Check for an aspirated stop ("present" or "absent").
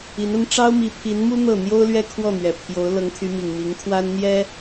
present